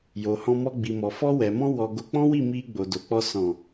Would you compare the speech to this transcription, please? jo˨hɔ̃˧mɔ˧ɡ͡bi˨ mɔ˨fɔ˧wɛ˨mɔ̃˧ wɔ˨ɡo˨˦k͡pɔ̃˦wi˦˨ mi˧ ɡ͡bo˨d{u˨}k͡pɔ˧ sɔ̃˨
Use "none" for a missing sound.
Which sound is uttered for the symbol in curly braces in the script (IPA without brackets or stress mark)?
o˨